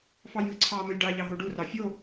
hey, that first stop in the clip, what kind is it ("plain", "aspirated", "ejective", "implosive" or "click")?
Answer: click